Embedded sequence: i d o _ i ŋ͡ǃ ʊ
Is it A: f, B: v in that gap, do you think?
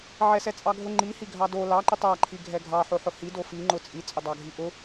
A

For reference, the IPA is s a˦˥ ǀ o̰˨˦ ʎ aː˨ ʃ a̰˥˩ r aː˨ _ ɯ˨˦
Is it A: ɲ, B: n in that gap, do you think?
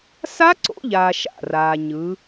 A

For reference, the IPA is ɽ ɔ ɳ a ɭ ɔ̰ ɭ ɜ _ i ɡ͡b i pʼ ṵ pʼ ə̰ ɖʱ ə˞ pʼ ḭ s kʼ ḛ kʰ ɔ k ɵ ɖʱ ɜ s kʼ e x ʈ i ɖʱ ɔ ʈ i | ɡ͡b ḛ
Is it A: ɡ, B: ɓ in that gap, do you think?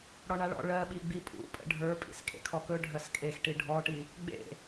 B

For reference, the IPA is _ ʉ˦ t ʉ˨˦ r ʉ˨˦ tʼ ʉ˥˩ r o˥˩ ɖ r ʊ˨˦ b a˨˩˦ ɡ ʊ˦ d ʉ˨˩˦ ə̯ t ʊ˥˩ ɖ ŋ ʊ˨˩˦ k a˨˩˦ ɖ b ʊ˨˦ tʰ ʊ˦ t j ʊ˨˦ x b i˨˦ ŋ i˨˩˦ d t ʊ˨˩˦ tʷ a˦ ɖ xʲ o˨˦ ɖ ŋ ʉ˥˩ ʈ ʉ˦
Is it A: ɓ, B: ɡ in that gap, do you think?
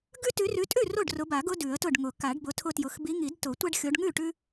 B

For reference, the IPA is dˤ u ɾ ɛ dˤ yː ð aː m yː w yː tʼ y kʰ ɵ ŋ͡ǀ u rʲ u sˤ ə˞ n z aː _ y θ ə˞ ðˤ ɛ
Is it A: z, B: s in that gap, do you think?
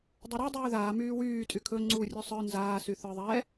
B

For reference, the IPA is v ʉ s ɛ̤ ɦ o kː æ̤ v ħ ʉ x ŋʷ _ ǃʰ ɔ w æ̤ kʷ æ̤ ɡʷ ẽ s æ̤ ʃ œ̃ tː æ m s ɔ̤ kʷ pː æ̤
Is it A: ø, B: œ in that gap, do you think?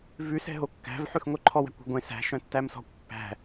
B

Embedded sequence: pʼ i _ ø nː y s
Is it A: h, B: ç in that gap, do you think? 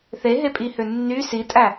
A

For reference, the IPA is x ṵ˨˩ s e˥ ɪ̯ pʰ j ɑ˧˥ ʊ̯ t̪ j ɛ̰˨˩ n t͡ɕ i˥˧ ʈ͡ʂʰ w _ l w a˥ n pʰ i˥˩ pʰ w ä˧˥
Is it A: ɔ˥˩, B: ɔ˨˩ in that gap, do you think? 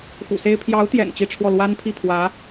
A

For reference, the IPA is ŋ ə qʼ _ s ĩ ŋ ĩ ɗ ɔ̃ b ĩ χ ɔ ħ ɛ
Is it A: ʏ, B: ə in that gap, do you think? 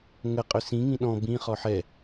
A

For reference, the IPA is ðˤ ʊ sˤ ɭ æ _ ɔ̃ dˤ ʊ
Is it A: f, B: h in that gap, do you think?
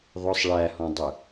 B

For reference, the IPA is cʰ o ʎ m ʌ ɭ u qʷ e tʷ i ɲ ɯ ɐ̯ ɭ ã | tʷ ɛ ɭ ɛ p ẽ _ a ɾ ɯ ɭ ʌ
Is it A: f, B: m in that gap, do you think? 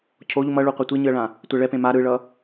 B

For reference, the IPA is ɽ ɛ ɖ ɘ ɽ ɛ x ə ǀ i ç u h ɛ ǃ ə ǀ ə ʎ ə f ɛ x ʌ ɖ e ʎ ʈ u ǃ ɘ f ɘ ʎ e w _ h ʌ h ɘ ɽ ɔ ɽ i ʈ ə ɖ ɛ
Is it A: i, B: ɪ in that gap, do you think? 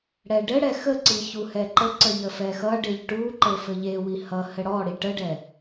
A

